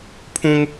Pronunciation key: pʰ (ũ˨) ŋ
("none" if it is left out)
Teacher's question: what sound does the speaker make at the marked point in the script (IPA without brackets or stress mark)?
ũ˦